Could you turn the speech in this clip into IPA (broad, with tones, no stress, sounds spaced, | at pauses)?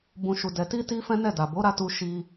b ũ˨ ʃ u˨ d ɛ˨ t i˧ t i˧ f ɛ̃˦ n ɛ˦˨ d a˨ b o˨˦ ɾ a˧ t u˧ ʃ i˧